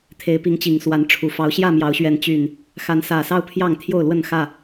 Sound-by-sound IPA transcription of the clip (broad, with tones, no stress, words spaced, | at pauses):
t̪ʰe˨˦ɪ̯pi˨˦ŋt͡ɕi˨˩ŋswa˨˦n ʈ͡ʂʰu˨˩ fɑ˨˦ʊ̯ɕjä˥˨mjɑ˨˦ʊ̯ɕɥɛ˨˦n t͡ɕy˨˩n | xa˨˦nsä˨˩ sɑ˦ʊ̯pʰjɑ˥˨ŋ t̪ʰjo˥˨ʊ̯lwə˥˨n xä˥˨